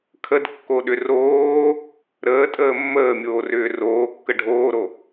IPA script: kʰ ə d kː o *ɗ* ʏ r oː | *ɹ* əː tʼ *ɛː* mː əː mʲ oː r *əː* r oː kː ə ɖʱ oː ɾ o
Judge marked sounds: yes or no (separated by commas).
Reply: yes, no, no, no